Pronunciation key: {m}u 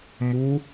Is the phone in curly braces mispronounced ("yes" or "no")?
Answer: no